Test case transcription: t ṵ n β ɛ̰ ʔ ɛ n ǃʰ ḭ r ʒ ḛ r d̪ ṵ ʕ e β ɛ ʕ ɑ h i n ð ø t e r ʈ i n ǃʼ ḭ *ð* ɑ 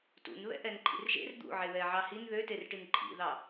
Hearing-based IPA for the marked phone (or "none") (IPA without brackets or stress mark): ð